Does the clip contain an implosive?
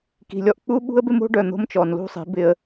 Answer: yes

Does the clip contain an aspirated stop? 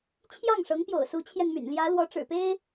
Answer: yes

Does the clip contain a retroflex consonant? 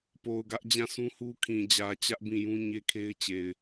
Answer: no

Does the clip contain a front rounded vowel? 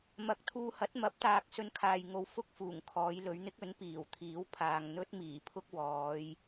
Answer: no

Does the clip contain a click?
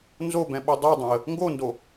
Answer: no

